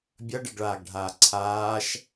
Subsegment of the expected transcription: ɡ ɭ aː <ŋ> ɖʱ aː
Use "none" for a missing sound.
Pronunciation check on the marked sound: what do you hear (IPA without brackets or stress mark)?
ɡ